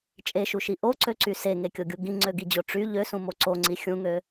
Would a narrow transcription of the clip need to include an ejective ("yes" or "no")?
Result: yes